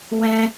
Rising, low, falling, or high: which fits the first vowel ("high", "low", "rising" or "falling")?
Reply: high